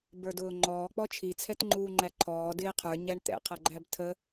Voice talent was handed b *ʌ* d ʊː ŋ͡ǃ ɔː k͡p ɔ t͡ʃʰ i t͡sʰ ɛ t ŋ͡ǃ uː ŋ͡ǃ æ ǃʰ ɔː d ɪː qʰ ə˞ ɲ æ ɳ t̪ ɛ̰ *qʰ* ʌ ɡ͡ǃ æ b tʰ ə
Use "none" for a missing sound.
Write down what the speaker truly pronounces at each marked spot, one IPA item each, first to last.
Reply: ə˞, qʰ

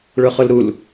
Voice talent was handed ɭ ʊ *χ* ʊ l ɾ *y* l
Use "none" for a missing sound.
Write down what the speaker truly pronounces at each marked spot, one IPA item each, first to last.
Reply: χ, u

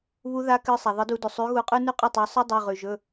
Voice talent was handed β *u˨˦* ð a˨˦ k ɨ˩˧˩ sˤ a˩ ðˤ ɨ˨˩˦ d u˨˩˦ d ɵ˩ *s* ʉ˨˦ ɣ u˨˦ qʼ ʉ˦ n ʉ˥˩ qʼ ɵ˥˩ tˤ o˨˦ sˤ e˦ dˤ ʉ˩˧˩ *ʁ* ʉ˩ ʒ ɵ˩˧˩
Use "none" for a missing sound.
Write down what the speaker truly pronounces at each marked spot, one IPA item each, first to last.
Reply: u˨˦, sˤ, ʁ

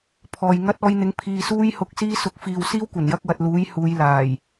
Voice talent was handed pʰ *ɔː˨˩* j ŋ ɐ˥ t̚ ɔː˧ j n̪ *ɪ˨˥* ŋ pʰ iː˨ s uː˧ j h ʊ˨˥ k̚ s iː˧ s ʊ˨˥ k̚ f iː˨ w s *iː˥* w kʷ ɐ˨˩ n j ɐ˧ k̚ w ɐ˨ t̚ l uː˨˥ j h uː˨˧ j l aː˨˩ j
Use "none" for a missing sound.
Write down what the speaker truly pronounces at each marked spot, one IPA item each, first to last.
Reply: ɔː˨, ɪ˨˥, iː˥

